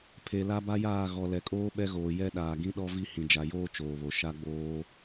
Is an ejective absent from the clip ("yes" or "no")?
no